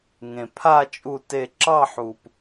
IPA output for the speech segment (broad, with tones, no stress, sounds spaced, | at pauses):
ŋ ẽ˩ pʰ a˥˨ t͡ʃʼ u˧˩ t e˧˩ ǁ ɑ˥˨ ħ u˩ p